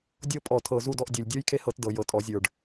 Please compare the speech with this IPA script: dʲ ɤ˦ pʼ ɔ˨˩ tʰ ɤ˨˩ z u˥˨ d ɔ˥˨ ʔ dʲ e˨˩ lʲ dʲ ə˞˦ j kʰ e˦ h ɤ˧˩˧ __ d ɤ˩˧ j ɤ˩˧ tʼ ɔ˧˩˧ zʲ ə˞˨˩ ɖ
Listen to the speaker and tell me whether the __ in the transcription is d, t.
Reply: t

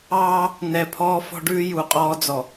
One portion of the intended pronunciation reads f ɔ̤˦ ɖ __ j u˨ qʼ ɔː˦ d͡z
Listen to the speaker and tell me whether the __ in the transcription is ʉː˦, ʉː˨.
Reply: ʉː˦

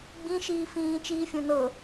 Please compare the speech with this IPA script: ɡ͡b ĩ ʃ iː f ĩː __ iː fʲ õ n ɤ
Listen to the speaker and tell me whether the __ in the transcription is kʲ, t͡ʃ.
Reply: t͡ʃ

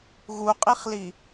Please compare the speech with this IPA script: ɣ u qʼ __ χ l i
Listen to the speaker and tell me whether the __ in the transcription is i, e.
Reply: i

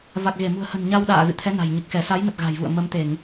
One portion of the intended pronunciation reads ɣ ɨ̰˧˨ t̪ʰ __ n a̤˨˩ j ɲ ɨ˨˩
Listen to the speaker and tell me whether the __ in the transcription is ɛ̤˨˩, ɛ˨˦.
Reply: ɛ˨˦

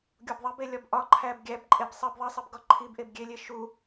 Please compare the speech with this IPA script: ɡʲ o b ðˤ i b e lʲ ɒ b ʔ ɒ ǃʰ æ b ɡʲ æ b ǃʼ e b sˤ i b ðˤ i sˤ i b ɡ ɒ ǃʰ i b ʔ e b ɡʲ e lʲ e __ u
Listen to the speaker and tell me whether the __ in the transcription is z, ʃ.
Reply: ʃ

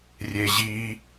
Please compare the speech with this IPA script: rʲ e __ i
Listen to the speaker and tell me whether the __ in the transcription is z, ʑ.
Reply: ʑ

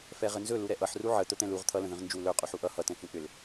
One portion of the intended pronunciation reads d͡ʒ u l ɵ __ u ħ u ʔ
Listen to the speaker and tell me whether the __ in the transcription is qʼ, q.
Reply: qʼ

